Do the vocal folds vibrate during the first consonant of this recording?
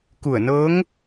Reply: no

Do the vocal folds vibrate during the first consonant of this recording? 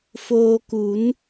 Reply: no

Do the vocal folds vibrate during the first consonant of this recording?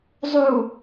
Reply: yes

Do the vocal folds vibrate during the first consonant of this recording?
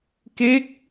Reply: no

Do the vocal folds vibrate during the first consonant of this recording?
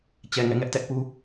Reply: no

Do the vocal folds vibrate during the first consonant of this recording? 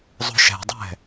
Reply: yes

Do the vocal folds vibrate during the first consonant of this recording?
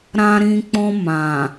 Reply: yes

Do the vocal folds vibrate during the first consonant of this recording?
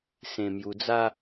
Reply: no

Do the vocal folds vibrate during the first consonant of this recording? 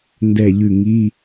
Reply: yes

